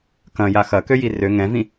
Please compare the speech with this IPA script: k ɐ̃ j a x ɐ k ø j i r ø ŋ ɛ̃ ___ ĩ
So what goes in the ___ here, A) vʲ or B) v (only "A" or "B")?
B